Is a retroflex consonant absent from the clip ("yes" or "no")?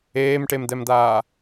no